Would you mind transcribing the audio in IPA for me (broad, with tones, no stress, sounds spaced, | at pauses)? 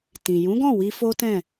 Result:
t ĩ˨ j ũ˨˦ ɡ ɔ̃˦˨ w i˧ f o˦ t ɛ̃˦˨